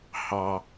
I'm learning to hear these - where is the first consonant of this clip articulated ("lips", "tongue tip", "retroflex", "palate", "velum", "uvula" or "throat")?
throat